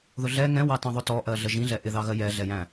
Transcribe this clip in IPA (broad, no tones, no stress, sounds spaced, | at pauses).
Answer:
ð ʊ ɮ ɛ ŋ ɛ̃ w ɑ t ɑ̃ ðˤ ʊ t ɔ ʔ ɜ ɮ ə ʒ ĩ ɮ ɛ ʔ ɪ ð ɑ ɣ ɜ j ɛ ɮ ɛ j æ̃